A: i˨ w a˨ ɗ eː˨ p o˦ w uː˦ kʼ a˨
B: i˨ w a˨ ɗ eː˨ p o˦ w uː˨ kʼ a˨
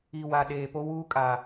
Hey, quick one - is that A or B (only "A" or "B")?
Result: A